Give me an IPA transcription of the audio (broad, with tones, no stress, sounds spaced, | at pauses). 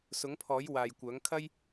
s ʊ˨˥ ŋ pʰ ɔː˨˥ j w aː˨ j kʷ œː˨˥ ŋ kʰ ɐ˥ j